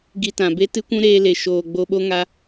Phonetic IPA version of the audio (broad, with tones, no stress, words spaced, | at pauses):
ɡi˧tã˨be˦ tɨ˦kʷũ˦ɾeː˧le˨ ʃoː˨ɡ͡bo˧ɓo˦ŋa˧